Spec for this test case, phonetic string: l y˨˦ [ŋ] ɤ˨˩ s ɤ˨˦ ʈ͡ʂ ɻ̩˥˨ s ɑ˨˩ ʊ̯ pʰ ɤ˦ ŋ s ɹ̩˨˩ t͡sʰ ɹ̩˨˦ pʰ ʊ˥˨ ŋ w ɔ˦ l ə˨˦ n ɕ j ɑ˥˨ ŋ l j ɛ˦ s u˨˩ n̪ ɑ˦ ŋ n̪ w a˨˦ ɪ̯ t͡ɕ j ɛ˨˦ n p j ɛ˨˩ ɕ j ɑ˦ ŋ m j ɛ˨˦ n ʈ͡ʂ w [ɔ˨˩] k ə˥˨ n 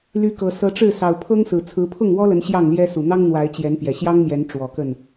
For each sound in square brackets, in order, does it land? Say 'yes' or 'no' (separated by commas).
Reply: no, yes